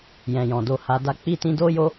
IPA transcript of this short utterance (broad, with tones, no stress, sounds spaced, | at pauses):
j ɛ̃˨ j ɔ̃˨ d o˧ h a˧ d a˦ k͡p i˦ t ĩ˦ d o˦ j o˦